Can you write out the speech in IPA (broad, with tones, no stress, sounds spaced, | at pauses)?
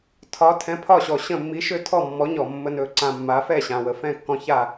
tʰ ɒ˩˧ tʰ ɛ̃˩˧ pʰ ɒ˧˩ ɕ ɔ˩ ɕ ə̃˧˩ mː i˩˧ ʃ ø˧˩ tʰ ɔ˧˩ mː ɔ˩˧ ɲ ɔ˩ mː ə˩ n ɵ˩ ǀ ã˩ mː a˩˧ f ɛ˥˩ ɕ ã˩ w ə˩ f ɛ̃˥˩ kː ɔ̃˧˩ ç a˥˩